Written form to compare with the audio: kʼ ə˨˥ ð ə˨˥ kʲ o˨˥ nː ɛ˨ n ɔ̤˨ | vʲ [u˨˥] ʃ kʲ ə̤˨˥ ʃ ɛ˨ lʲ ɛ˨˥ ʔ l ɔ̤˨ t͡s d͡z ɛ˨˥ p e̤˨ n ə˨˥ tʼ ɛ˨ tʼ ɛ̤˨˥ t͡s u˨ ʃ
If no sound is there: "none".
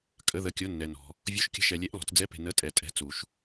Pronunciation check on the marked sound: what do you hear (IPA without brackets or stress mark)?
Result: u˨˥